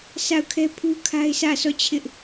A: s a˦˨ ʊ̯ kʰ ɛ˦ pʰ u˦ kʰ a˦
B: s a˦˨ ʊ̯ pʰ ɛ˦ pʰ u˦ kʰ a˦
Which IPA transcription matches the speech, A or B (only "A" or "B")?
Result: A